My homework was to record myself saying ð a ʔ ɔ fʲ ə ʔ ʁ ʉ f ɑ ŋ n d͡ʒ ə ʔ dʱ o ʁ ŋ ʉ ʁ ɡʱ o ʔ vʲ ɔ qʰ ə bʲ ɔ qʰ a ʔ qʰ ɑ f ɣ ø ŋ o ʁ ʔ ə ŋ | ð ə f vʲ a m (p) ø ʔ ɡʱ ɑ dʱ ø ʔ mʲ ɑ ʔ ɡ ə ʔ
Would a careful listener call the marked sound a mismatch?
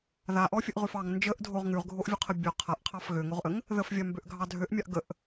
yes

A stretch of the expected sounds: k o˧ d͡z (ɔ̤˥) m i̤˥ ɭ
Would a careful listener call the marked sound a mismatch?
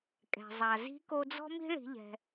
no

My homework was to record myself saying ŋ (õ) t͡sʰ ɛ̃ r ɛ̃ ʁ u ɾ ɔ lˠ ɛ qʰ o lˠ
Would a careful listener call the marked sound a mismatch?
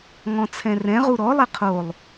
yes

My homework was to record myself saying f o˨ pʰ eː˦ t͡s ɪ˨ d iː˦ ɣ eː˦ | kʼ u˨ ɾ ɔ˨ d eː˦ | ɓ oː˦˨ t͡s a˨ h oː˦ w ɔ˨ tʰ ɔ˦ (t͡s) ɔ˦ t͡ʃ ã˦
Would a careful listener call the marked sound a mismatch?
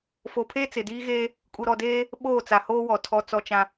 no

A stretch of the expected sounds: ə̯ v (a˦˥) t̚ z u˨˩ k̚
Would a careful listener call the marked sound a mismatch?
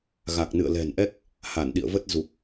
yes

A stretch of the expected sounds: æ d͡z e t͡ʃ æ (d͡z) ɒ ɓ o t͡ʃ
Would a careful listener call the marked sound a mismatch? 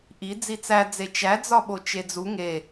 no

